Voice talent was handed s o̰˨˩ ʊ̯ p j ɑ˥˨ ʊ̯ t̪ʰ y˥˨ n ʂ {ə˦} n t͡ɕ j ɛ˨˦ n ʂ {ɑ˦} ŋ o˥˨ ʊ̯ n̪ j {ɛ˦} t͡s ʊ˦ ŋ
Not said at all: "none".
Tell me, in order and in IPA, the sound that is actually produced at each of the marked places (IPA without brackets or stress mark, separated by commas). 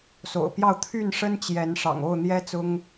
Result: ə˦, ɑ̰˨˩, ɛ˦